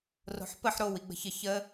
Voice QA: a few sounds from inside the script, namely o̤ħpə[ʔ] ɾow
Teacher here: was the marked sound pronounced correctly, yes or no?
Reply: no